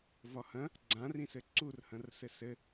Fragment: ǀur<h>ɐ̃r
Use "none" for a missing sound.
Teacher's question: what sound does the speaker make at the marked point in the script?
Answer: h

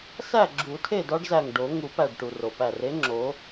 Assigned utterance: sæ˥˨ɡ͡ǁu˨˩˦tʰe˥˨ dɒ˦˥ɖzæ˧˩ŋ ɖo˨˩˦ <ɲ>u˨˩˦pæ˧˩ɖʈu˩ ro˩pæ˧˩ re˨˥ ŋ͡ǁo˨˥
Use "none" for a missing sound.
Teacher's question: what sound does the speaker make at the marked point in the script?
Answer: ŋ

